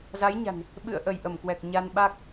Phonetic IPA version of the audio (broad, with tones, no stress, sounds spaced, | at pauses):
z a˨˦ j ɲ a̤˨˩ n | ɓ ɨ̰˧˨ ə̯ ʔ ə˧˩ j ʔ ə˧˩ m k w ɛ˨˩ k̚ ɲ a˧ n ɓ a˦˥ k̚